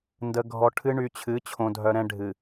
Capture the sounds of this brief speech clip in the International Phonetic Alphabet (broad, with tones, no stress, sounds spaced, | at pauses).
n d ə˨ ɡʱ ɔ˨ ʈʰ ɨ˦ ɳ y˨ t͡ɕʰ ɨ˨˦ t͡ɕʰ õ˨ dʱ œ˨ ɾ ɛ̃˦ ɖʱ ɨ˨